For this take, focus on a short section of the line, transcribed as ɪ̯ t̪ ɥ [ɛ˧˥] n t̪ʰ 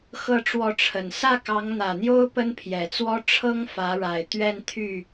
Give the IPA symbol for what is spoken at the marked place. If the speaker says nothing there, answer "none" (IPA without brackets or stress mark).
ɛ˥˧